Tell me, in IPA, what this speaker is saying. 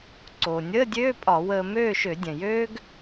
ǀ oː˩ nʲ əː˧˥˧ dʲ øː˧˥˧ pʼ ɒ˧˩˧ w əː˧ m øː˥˨ ʃ ø˧˩˧ dʲ ɛ̃˩ j øː˥ ɡ

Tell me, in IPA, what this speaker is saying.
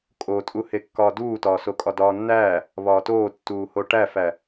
kʼ o tʼ u h e kː ɒː d uː t ɒː s o kʼ ɒ d ɒː nː æː | β ɒː t oː tː uː h o ʈ æ f æ

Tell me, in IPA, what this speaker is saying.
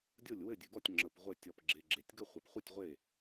dʲ o˥˩ lʲ w ɘ˥˩ dʲ ɨ˨ ɡ ɔ˥˩ tʲ ŋ͡ǁ ə˨ p ʁʷ ɘ˥˩ tʲ ɔ˨ p ɡ͡ǁ e˨ ɡ͡ǁ e˨ tʲ ɡ ə˥˩ χʷ ɘ˨ p χʷ ɨ˥˩ tʲ ʁʷ e˥˩

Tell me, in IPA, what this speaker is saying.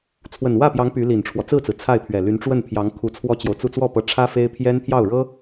t͡sʰ w ə˨˩ n w ä˥˩ p j ɑ˧˥ ŋ p y˧˥ l i˨˩ n ʈ͡ʂʰ w ɔ˦ t͡s ɹ̩˥˩ t͡s ɹ̩˩ t͡sʰ a˥˩ ɪ̯ pʰ ɥ ɛ˨˩ l y˧˥ n ʈ͡ʂ w ə˥˩ n pʰ j ɑ˧˥ ŋ kʰ u˧˥ t͡sʰ w ɔ˥ t͡ɕ j o˨ ʊ̯ t͡s u˥˧ t͡s w ɔ˥˩ p ɤ˧˥ ʈ͡ʂʰ ä˥ f e˥ ɪ̯ pʰ j ɛ˥ n pʰ j ɑ˥˩ ʊ̯ ɻ ɤ˥

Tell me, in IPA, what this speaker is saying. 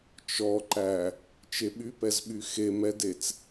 t͡ʃ ɔ ǃ æ | t͡ʃ e ɓ y p ɛ z ɓ y x e m ɛ d e t͡s

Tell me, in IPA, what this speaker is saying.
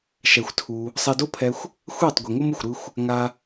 ʃ ɛ˧ xʷ tʰ u˧ | sˤ ɛ˧ d o˦ pʰ ɛ˧ xʷ | xʷ ɛː˦˨ tˤ ɡʷ i˨ ŋ o˦ m ɯ˨ xʷ ɾ ɯ˧ xʷ | ŋ a˧

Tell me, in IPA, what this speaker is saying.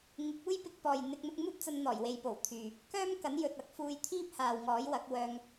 ŋ ɪ˨˥ k̚ uː˥ j p ɪ˨˥ k̚ p ɔː˨ j n̪ ɪ˧ k̚ n̪ ʊ˧ k̚ m uː˥ p̚ t͡s ɐ˧ n n̪ ɔː˨˩ j w e˨ j p o˨˩ w t̪ʰ yː˨ | k œː˥ m k ɐ˨˥ n j ɵ˨ t̚ ɐ˥ k̚ f uː˧ j t̪ʰ iː˥ p̚ h aː˨ w ŋ ɔː˨˥ j w ɐ˨˥ k̚ w œː˧ ŋ

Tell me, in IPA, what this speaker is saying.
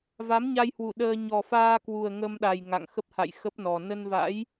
v a˨˦ m ɲ a˧ j h w u˧˩ ɗ əː˧ ɲ ɔ˨˩ f aː˧ k w u˨˩ ə̯ ŋ ə˧ m ɗ a˨˩ j ŋ a̰˧˨ ŋ x ə˦˥ p̚ h a̰˧˨ j x ə˦˥ p̚ n ɔ˨˩ n ə˧ n v a̰˧˥ j

